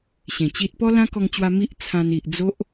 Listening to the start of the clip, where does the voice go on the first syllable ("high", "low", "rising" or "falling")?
low